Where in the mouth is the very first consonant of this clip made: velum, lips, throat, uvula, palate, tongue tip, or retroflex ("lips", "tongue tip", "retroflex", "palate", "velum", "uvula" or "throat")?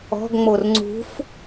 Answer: velum